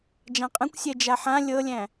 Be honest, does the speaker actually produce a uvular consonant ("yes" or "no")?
yes